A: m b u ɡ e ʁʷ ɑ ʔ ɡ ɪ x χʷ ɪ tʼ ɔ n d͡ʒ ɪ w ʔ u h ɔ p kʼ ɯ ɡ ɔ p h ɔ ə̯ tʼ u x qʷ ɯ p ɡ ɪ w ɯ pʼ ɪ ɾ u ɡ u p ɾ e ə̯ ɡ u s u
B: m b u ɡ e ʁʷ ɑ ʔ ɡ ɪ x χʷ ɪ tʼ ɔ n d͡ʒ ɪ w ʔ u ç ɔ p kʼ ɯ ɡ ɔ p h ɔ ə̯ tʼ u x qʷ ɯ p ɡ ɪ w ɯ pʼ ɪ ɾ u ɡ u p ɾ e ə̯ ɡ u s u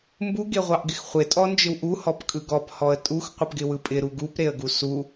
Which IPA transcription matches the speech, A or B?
A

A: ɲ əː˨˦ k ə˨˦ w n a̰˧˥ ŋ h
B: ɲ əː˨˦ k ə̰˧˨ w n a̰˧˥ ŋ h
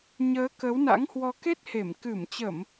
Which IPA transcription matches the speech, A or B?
A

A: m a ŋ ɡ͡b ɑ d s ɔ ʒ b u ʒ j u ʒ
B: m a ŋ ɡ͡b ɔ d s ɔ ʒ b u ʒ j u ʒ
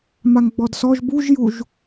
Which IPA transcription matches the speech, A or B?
B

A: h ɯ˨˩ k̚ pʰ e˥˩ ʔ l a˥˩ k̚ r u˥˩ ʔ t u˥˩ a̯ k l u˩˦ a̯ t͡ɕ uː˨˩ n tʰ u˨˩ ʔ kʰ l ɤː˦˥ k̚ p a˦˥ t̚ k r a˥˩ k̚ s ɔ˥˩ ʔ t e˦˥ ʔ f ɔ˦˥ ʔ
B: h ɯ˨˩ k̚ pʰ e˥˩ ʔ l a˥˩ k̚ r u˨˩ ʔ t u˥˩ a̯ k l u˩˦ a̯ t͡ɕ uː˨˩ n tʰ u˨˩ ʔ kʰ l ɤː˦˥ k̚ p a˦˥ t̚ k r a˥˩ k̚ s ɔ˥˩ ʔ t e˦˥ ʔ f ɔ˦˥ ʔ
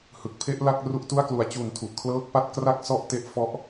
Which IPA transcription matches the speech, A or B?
A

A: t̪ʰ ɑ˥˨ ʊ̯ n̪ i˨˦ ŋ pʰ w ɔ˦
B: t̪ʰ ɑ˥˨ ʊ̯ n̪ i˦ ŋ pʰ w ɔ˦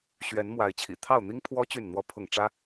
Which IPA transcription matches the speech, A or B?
B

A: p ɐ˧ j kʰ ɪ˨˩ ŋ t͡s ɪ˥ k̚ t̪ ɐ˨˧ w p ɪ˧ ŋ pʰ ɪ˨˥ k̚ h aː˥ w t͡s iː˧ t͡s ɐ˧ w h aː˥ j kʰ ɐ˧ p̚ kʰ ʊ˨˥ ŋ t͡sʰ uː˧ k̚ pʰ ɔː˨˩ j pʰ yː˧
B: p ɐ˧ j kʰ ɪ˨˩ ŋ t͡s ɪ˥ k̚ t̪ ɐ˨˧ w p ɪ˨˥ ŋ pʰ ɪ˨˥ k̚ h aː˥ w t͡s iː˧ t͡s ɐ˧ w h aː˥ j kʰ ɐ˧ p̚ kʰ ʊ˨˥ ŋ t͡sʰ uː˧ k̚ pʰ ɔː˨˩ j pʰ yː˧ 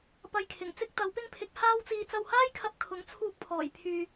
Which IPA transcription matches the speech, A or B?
A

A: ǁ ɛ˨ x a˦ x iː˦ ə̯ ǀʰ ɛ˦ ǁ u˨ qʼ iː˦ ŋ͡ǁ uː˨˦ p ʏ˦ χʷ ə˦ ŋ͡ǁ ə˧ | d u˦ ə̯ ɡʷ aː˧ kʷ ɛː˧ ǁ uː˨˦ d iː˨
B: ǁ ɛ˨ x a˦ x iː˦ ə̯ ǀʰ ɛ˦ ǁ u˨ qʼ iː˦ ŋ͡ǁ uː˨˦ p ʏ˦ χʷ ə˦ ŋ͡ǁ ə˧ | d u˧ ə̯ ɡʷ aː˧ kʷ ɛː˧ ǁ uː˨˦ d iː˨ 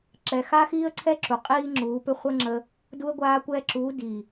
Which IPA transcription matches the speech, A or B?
B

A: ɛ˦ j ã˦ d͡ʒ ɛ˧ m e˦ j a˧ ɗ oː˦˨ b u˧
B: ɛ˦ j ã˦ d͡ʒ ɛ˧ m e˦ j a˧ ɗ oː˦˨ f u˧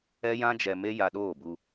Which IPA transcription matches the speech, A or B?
A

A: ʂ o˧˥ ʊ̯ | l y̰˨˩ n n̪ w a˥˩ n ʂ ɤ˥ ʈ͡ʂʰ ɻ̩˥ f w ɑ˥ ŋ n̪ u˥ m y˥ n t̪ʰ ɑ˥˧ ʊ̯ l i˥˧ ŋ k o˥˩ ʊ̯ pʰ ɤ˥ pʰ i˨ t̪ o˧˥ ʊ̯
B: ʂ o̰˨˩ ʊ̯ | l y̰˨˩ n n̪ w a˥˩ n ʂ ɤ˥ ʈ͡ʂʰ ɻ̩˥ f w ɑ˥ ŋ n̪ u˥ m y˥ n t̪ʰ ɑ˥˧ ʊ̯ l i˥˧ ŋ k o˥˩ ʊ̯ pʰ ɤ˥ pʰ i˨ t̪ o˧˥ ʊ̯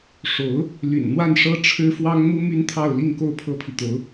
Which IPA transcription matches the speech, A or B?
A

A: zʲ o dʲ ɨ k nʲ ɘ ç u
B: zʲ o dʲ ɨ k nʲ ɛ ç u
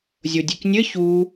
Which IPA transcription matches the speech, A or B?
A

